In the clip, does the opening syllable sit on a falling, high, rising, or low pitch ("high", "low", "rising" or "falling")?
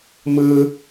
low